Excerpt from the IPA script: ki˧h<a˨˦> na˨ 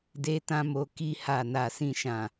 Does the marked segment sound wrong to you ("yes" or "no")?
yes